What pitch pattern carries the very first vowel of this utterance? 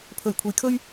low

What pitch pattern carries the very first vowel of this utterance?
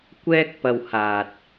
high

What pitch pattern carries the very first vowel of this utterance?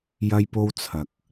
high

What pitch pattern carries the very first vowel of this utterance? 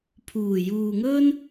low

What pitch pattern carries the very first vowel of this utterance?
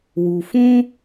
low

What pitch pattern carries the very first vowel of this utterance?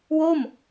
falling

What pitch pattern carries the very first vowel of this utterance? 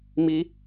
high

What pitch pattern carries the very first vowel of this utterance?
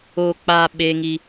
low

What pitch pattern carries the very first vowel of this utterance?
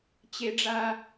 high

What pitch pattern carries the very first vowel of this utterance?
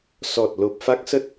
low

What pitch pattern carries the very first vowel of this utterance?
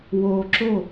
low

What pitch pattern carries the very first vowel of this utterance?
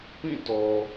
falling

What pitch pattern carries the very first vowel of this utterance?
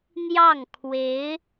falling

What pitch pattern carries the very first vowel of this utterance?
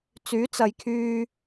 rising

